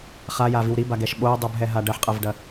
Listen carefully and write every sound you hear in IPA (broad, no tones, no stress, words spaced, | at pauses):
χajaviw ɾibaɡɛʃ ɓoɐ̯dˤubɦɛɦa ɖɐħqʼɐvɖɐ